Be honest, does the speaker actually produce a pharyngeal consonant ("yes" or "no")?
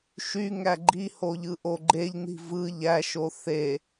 no